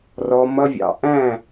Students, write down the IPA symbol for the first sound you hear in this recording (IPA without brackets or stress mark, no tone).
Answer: r